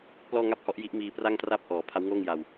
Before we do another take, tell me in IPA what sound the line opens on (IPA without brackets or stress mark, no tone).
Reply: p